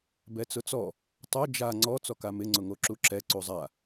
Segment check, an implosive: absent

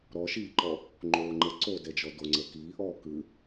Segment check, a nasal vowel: absent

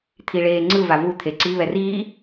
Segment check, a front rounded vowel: absent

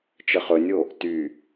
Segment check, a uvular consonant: present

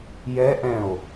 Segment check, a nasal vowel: present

